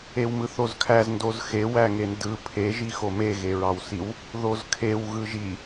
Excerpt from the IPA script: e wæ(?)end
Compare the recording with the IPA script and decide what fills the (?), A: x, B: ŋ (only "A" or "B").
B